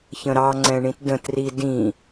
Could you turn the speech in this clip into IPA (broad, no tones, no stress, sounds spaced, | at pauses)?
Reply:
ç ə̃ ɾ ɑ ŋ͡ǀ ɛ̃ ɳ ĩ t d ə̃ t r i d ĩ